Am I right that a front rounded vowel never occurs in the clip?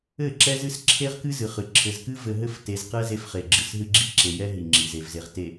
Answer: yes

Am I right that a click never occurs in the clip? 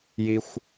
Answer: yes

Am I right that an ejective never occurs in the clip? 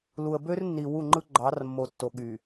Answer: yes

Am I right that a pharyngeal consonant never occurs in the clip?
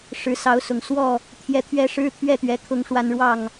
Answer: yes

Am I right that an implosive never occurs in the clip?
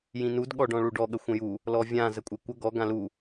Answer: no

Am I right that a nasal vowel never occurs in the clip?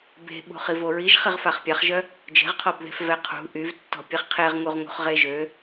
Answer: yes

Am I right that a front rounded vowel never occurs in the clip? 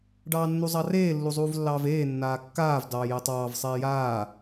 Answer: yes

